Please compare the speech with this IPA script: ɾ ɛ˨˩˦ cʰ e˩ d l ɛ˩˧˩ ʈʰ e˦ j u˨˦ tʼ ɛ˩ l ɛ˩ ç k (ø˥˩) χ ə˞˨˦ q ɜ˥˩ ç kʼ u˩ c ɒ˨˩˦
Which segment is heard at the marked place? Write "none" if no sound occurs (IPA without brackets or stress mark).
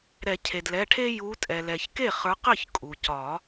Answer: e˥˩